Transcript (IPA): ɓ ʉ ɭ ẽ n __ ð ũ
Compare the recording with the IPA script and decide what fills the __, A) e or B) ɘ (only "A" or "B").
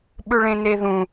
A